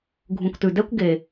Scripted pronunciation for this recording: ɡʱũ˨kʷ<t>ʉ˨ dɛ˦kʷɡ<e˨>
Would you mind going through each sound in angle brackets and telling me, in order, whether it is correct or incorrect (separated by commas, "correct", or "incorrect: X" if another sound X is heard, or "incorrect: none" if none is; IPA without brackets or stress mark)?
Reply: correct, correct